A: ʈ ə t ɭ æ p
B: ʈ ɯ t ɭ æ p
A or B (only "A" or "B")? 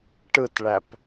B